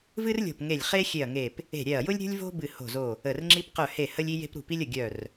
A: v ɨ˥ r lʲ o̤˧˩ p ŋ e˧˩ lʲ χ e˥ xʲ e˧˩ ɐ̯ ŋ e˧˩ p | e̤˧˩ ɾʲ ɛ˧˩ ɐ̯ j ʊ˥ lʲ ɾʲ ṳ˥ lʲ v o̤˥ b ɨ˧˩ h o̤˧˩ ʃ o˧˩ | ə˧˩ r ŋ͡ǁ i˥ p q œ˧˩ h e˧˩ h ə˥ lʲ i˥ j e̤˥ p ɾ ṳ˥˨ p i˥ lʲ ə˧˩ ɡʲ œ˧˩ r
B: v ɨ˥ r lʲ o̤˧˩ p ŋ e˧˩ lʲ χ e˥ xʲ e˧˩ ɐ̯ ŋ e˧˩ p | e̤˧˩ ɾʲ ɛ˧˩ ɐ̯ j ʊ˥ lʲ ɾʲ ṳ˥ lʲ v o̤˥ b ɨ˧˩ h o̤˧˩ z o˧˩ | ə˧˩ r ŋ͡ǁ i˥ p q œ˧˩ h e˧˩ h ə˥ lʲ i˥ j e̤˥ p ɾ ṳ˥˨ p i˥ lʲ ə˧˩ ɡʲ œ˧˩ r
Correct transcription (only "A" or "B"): B